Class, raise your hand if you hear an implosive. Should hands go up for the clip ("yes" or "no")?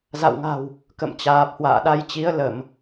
yes